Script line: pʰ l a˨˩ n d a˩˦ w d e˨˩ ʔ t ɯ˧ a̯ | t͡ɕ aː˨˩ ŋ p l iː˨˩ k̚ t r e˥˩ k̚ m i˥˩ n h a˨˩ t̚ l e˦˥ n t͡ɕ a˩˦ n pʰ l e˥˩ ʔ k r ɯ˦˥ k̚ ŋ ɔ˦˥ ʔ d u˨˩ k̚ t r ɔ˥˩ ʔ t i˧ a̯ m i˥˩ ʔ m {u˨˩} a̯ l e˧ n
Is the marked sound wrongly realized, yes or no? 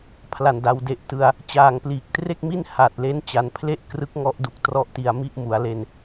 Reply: yes